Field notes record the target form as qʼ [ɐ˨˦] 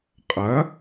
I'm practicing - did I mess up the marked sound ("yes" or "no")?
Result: no